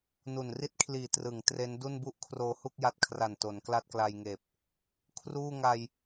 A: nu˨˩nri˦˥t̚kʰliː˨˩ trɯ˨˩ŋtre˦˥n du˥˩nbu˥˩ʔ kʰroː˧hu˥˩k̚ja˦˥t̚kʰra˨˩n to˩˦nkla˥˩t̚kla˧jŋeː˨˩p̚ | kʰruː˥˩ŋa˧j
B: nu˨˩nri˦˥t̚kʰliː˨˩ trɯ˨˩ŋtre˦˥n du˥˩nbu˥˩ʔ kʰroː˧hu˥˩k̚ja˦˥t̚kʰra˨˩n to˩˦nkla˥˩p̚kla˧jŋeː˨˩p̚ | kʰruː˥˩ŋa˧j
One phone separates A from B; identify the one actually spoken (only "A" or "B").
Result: A